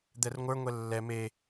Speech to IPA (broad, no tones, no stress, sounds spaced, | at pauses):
d̪ ɛ r ŋʷ ə˞ ŋʷ ɛ lː ɛ m e